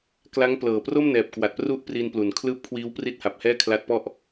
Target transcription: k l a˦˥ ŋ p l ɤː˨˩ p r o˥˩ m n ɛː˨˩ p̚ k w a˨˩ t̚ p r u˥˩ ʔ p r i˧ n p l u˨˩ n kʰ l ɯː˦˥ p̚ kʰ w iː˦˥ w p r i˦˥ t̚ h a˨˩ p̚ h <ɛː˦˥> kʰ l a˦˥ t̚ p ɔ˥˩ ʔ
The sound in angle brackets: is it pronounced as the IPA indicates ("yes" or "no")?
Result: no